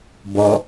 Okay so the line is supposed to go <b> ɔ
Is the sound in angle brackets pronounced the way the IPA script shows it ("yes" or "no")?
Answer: yes